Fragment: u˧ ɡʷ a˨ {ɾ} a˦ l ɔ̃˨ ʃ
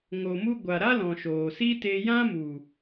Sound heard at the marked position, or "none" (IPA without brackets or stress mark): ɾ